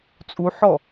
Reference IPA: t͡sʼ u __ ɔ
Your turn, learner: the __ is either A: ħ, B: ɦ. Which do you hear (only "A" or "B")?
A